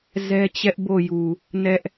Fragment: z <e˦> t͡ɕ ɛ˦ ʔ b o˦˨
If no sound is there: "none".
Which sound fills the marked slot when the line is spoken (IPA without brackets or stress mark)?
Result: ɛ˦